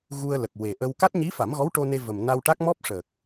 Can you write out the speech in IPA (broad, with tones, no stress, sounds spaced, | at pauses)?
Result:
ɣ u˧ ə̯ l ə˨˩ k̚ w e˨˩ ʔ ə˧ w k a˦˥ t̚ ɲ i˧˥ f a˨˩˦ m ɣ ɔ˧˥ w ʈ o˧ n e˧ v ə˨˩ m n a˧ w ʈ a˦˥ k̚ m ɔ˦˥ p̚ ʂ əː˨˩ k̚